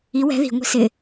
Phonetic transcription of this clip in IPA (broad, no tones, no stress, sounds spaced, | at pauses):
i w ɛ̤ ð i̤ ŋʷ i̤ s ɪ